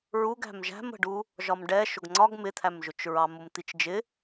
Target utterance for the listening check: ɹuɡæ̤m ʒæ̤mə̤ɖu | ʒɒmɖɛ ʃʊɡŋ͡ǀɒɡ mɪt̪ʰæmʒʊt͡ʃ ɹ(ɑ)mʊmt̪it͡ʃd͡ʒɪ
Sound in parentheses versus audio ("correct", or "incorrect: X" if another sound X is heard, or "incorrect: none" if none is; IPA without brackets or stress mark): correct